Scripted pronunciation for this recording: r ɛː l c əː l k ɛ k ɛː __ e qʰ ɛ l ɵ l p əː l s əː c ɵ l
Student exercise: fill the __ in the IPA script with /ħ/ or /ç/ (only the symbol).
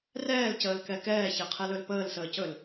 ç